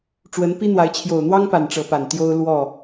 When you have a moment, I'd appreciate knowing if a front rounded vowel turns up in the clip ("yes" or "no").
no